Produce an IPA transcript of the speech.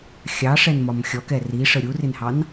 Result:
xʲ ɑ ʂ ɛ n m ɒ m xʲ ɔ k ɛ r i ʂ ə ɾʲ u r ɪ n h ɑ n

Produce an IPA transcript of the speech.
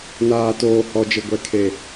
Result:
n aː˨ t oː˨ h ɔ˨ d͡ʒ ɪ˨ ɡʷ ɛ˨ kʰ e˨

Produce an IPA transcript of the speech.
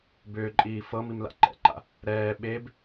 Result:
b ʏː ǃʼ iː f ɤ m i m l a̰ ǃ ɛ̰ ǃ a̰ | ɾ ɛː ɓ e b

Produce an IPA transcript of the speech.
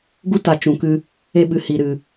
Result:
ɡ u˦ t a˨ t͡ʃ ũ˨ k ɨ˧ | e˦ ɓ ɨ˨ h i˨ ɾ ɨ˨

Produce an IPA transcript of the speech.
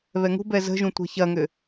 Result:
β ɛ ŋ ṳ b ɛ z ə̤ ʒ ũ tʷ ɛ̤ ç ɐ ŋ ʏ

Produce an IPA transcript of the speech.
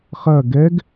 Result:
χ ɐ ɡ ɛ ɡ

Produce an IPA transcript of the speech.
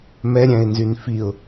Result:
m ɛ ɾʲ æ̃ ɪ̯ n z y n f i ʊ̯

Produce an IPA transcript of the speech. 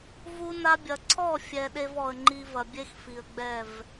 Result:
v u˧ n a˧ bʲ ɐ˨ ǀʰ ɔ˦˨ fʲ ɛ˨ ɗ e˧ v ɔ˨ ə̯ ŋ͡ǃ i˧ v ɐ˨ bʲ e˦ x f i˨ ə̯ ɡ͡b ɛ˦˨ v

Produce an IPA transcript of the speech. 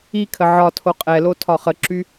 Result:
i kʰ ə ʕ ɒ tʰ o qʼ ɛ l o tʰ ɒ χ ə ǁ y

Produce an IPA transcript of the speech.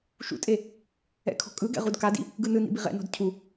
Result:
ʃ ṵ tʼ e | ɛ̰ kʰ ɔ̤ kʼ ɯ ɡ ɛ̰ ʁ u d k a d ḭ | ɡ ɯ n ɯ n ḭ b i ʁ ɛ̰ n ɔ̤ d cʰ u

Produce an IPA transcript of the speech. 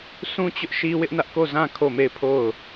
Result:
s ũ˦ t͡ɕ ʊ˦ ʔ ʃ i˦ w ɪ˦ ʔ n ä˦ ʔ k o˦˨ z ã˦˨ kʰ o˦˨ m e˦˨ ɪ̯ pʰ o˦˨ ʊ̯

